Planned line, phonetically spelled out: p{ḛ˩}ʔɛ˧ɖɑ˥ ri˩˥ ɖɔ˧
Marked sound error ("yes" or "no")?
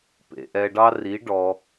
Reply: no